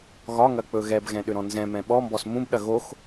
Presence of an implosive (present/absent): present